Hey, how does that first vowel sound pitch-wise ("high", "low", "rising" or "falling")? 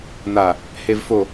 low